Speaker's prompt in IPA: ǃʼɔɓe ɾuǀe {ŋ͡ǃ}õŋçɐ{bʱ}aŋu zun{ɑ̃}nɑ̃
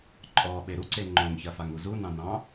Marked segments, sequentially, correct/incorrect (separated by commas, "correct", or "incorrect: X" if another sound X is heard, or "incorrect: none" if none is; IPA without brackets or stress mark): correct, incorrect: f, correct